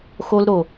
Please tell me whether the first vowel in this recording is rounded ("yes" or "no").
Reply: yes